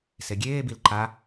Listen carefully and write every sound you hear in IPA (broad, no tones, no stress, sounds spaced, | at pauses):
s e ɡʲ eː b i l ǃ a